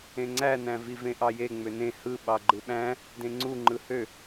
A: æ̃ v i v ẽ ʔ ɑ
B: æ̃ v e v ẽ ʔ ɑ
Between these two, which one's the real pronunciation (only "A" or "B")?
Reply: A